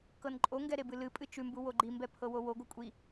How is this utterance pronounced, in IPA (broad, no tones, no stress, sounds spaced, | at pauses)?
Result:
k ɤ n ǃʼ o ŋ ɡ ɛ ɾ e b ɨ l ɨ pʼ ɨ t͡ʃ ʉ m b u w o ɡ͡ǃ i m b ɛ pʰ ɤ w o w o ɡʷ ɨ kʷʼ i